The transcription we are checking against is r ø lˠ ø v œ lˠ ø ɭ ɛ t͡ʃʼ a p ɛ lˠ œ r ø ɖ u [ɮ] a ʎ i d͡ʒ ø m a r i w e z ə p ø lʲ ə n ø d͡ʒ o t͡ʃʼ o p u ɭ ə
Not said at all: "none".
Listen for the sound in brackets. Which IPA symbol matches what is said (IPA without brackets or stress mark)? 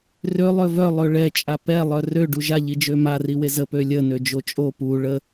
ʒ